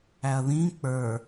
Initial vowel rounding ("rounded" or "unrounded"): unrounded